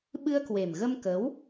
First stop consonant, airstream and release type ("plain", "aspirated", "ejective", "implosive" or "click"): implosive